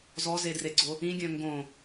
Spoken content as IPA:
z ɔ z e d r e ɡ͡ǀ o | ĩ ɡʲ œ̃ ŋ ɡ õ

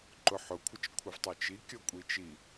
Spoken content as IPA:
ǃ ʊ ħ ʊ kʷʰ ə t͡ʃ kʷʰ ɪ v tˤ ə˞ t͡ʃ i kʲ ɔ kʷʼ i t͡ʃ i

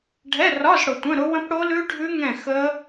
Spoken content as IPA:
ɖʱ ɛ˧˥˧ r ɒ˧˥˧ z ɽ ʊ˨ tʷ ə̃˧˥˧ ɾ ʊ˦˥ w ə̃˦˥ p ɽ o˦˥ l ʉ˦˥ ɖʱ ʉ˦˥ ŋ ɛ̃˥˨ x ə˦˥

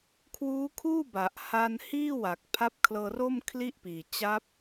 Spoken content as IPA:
kʰ w uː˦˥ kʰ uː˥˩ b a˨˩ ʔ h a˧ n h iː˥˩ w a˨˩ k̚ pʰ a˦˥ p̚ kʰ l ɤː˧ r o˥˩ m kʰ l i˥˩ ʔ p iː˨˩ t͡ɕ a˦˥ p̚

